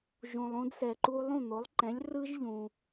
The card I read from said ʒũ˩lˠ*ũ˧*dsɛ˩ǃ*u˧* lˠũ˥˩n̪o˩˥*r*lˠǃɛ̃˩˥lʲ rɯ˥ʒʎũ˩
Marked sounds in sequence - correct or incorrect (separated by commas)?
correct, correct, incorrect